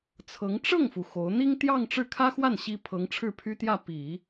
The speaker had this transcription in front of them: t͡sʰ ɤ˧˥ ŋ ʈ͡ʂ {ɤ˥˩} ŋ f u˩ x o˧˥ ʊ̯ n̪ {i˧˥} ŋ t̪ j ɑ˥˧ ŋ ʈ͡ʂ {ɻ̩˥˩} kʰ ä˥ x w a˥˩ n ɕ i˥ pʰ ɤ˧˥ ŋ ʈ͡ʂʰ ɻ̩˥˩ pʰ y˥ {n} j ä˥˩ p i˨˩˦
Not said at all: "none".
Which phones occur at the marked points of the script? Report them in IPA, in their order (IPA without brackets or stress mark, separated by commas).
ɤ˥˩, i˥, ɻ̩˥˩, t̪